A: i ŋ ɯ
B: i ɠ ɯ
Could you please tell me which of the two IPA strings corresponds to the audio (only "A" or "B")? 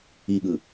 B